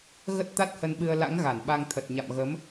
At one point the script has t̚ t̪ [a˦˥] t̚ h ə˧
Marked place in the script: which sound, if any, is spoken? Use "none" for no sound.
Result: a˦˥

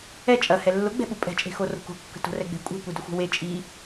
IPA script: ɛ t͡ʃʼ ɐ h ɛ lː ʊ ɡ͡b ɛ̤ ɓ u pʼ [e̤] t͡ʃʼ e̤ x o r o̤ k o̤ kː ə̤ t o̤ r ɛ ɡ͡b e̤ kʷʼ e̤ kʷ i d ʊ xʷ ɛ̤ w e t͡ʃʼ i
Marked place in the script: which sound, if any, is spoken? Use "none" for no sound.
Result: ɛ̤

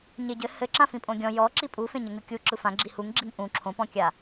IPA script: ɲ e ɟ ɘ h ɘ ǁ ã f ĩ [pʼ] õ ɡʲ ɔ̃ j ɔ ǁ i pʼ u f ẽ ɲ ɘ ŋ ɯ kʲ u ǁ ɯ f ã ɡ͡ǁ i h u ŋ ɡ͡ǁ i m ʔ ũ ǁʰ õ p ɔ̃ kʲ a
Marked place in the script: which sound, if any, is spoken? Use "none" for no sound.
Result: pʼ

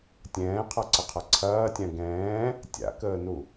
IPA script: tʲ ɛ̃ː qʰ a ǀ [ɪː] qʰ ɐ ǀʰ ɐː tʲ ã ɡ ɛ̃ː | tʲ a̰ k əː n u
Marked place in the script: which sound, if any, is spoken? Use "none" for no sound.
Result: ɪ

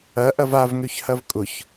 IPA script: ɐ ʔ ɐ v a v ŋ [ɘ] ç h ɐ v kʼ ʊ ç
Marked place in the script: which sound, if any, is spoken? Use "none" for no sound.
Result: ø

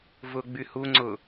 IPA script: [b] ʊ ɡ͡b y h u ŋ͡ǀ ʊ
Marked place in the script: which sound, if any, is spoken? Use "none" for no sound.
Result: v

